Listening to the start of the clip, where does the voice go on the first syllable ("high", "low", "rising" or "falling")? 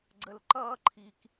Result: low